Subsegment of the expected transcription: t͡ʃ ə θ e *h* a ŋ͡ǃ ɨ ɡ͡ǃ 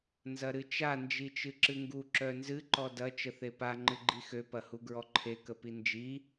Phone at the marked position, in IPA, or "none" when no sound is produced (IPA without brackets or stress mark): p